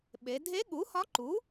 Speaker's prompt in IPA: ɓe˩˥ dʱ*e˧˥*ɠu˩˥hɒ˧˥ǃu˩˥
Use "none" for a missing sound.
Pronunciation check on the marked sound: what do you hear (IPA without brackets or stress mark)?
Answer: e˧˥